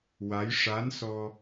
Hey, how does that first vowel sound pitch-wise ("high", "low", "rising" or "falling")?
rising